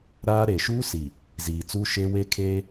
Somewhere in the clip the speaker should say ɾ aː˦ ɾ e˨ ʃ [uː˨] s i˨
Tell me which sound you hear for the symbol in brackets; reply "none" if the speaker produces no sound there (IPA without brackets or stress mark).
uː˦